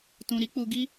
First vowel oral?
no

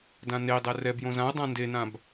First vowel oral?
no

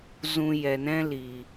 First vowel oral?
no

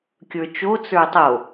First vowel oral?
yes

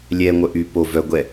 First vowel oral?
yes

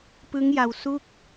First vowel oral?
yes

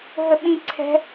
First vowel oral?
yes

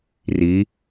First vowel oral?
yes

